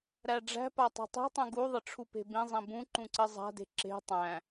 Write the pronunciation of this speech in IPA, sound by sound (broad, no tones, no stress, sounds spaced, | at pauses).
ɾ æ ɖ͡ʐ æ̤ p a tˤ ṳ tˤ i̤ tˤ ũ ɡ u ðˤ ɘ ʈ͡ʂʰ u p e̤ b ĩ zˤ ĩ b ũ ǃ ũ ǀ ɘ zˤ a̤ d e̤ ǁ e̤ tˤ æ̃